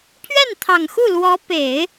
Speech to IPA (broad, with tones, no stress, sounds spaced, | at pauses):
pʰ ɥ ɛ˥˩ n t̪ʰ ɑ˨˩ ŋ x u˥˩ l w ɔ˧˥ p e˨˩˦ ɪ̯